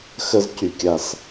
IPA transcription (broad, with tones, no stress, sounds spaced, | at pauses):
x ə˧ z c y˩ kʲ a˩ s